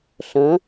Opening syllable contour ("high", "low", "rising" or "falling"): rising